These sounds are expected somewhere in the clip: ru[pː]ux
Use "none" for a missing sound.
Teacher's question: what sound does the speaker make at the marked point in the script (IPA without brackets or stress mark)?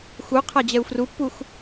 pː